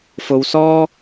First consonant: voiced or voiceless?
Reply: voiceless